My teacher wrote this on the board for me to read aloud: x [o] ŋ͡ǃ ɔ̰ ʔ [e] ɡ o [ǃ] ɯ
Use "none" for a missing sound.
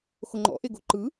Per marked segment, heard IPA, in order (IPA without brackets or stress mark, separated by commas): o, e, ǃ